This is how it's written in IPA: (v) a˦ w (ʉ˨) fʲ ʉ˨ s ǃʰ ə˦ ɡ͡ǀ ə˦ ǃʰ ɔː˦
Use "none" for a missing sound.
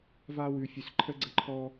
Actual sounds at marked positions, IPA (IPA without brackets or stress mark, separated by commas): v, ʉ˨